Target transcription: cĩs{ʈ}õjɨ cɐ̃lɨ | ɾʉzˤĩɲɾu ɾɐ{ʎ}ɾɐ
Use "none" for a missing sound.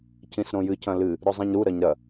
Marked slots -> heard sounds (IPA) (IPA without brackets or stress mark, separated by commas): ɾ, ɲ